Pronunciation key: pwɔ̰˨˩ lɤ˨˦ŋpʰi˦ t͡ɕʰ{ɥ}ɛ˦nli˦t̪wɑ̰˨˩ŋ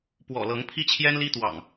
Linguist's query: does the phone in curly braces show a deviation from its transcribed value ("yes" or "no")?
yes